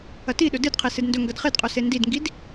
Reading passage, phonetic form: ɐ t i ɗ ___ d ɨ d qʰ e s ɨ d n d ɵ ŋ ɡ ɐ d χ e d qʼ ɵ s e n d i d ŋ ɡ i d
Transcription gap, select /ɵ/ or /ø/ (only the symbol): ɵ